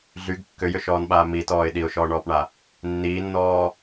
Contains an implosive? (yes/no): yes